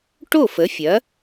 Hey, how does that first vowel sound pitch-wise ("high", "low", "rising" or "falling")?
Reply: falling